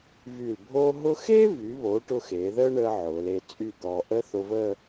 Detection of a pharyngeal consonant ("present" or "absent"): present